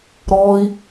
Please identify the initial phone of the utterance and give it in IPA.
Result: ɾ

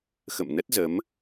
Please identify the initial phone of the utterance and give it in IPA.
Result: x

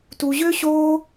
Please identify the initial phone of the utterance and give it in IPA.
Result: t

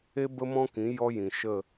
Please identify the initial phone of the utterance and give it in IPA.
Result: e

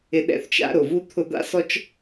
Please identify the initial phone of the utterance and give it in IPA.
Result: ɪ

